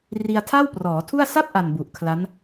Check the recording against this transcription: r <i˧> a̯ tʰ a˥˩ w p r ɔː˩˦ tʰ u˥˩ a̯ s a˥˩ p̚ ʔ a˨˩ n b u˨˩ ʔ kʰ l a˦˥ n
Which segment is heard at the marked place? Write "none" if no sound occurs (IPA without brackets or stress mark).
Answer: i˧